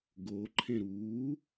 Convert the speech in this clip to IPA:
ɡ oː ǃʰ ẽ ɾ uː

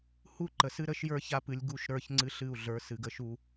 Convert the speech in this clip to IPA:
h u˦ ǃ ə˨ s ɨ˦ ɾ ə˦ ʃ j ə˞˦ ç a˦ p ɨ˨ lʲ ɡ u˦˨ ʃ ɾ ə˞˦˨ ç ŋ͡ǀ ɨ˦ ɬ ɨ˦˨ u̯ ɮ ə˞˨˦ s ɨ˨ ɡ ə˦ ʃ u˦

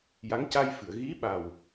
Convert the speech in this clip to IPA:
j a˧˥ ŋ c a˧ j f ɨ˨˩˨ ə̯ ɣ i˧˥ ɓ a˨˩ w

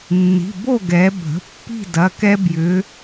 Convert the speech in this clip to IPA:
nː i̤˩˧˩ b o˥˨ ɡ ɛ˩˧ bʱ ə̤˩˧˩ pː i̤˥˨ d ɐ˩˧˩ k ɛ˦ b j ʏ˩˧

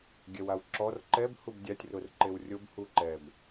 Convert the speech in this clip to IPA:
ɡʲ ɛ w a w ǁ ɔ r ǃ ɛ b h u b dʲ a tʲ r ʊ r ǃ e w rʲ o b h u ǃ ɛ b

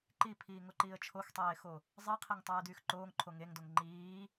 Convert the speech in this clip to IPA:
ǃ i pʰ iː ŋ o ǃ iː ə̯ t͡ʃʰ o x tˤ eː x o | zˤ i qʰ e ŋ tˤ yː d yː x ǃ oː ŋ ǃʰ o ŋ e ŋ d o ŋ ŋ͡ǃ iː

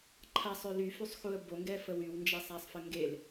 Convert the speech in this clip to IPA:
ǃʰ a sˤ ø l y f y sˤ x u ə̯ b o ŋ ɡ ɛ f ə w y w n d͡ʒ ɛ sˤ a sˤ f ə ŋ ɡ e l

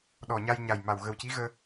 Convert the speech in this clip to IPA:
ɗ ɔ˨˩ ɲ a˧ j ɲ a˨˩ j m a˨˩ w ɣ ə˨˩ w c i˧˥ ɣ əː˧

